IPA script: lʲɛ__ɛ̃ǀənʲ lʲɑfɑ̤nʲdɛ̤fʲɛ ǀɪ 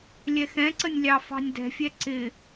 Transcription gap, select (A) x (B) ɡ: A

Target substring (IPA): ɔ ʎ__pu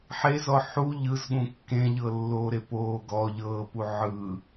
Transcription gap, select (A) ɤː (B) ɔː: A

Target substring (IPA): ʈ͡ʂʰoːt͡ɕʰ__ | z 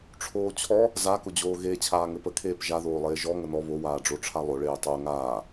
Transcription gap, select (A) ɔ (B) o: A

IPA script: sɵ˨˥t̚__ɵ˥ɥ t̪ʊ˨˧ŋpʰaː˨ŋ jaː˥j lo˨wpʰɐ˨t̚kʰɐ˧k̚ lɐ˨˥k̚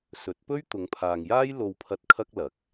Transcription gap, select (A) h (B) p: B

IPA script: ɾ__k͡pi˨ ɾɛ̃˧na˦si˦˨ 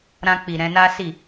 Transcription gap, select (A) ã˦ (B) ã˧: B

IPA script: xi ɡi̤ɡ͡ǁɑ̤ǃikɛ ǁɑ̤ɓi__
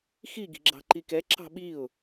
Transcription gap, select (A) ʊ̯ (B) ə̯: A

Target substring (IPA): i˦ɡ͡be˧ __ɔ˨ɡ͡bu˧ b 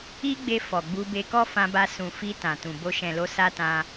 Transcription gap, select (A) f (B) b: A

